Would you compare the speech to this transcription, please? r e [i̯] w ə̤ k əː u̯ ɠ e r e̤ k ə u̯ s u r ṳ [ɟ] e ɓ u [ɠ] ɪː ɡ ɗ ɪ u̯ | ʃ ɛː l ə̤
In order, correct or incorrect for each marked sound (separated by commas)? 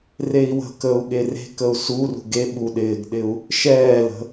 correct, incorrect, incorrect